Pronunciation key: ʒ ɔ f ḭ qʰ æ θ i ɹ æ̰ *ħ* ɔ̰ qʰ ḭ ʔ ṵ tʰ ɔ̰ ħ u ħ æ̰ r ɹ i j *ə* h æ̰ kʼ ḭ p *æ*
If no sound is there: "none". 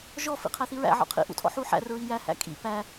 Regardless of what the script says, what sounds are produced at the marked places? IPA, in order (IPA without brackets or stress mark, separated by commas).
ʕ, æ, æ